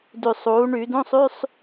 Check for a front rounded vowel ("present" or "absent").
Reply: present